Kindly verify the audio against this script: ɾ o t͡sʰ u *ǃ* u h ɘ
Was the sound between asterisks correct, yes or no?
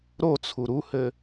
no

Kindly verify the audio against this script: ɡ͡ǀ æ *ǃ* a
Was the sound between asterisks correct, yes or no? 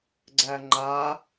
no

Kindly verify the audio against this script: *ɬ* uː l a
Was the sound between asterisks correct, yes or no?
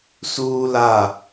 no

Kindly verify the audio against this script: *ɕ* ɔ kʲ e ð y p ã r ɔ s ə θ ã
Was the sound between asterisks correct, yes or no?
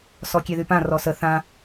no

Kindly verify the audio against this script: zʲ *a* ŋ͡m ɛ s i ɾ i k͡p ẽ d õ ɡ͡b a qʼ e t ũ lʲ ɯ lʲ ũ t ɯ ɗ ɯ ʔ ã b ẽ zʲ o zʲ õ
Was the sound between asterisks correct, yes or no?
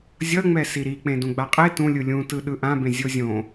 no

